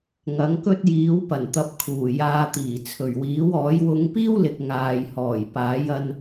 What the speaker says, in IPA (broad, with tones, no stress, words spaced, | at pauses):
ŋɐ˨˥ŋkɵ˥t̚jiː˨˥wpɐ˨˩n t̪ɐ˨p̚kʰuː˨˩ jaː˧t̪iː˨˩ t͡sʰɵ˨˩ɥwiː˨˥wɔː˨˥j wʊ˨˧ŋpiː˥wlɪ˨k̚ ŋaː˨j hɔː˨˩jpaː˨˥j ɐ˧n